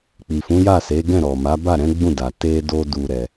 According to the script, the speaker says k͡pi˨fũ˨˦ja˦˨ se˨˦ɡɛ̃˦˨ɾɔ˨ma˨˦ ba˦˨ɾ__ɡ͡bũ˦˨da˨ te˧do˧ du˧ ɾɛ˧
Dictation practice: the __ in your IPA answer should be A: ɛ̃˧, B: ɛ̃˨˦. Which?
B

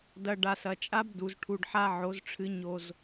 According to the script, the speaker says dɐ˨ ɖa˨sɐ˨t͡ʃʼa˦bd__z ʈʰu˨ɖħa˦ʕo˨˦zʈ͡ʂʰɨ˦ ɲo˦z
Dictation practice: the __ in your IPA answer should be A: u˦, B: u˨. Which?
B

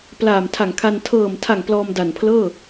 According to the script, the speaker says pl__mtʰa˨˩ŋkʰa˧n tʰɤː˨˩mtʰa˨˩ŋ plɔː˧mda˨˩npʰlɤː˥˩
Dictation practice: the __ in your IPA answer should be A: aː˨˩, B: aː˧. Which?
A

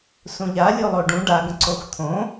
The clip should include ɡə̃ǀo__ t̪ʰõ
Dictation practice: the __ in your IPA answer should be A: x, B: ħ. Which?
A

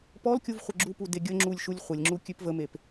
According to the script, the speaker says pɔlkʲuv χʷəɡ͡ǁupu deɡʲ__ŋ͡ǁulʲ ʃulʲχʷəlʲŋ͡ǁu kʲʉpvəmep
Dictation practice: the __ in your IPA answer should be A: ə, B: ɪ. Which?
A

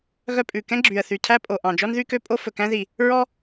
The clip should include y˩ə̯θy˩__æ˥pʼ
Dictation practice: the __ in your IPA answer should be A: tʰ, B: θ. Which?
A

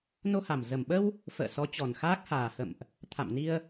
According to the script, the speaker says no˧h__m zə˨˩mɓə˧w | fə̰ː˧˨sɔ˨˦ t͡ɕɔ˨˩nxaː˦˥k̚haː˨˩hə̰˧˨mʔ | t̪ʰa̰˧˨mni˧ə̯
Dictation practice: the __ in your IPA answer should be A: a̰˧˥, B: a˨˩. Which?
B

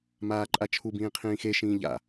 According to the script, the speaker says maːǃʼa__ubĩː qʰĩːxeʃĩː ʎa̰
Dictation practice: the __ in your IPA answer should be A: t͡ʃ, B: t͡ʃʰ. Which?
B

